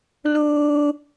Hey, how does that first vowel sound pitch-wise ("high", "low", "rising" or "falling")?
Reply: high